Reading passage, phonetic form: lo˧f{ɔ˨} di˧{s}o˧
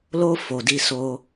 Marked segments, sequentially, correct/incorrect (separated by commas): incorrect, correct